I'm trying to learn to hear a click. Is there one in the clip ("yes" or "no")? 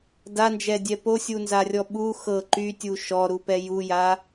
yes